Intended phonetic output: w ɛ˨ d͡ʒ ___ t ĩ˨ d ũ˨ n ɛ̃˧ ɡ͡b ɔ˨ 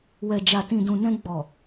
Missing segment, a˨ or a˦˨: a˨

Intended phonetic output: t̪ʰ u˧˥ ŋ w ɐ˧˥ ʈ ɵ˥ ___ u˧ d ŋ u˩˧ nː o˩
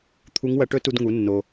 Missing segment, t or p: t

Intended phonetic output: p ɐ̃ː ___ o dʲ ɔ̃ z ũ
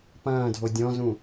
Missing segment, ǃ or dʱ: dʱ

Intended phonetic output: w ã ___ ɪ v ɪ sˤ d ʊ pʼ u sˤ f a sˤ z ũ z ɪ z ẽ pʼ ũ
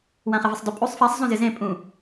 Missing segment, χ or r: χ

